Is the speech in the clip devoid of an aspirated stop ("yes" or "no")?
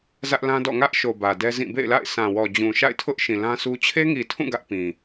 no